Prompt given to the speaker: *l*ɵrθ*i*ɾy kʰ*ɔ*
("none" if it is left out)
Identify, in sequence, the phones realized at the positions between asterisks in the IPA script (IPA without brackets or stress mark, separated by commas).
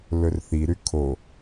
l, i, o